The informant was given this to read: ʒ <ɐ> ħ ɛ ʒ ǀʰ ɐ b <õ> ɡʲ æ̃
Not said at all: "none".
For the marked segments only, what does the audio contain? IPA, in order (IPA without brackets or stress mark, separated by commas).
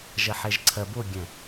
ɐ, o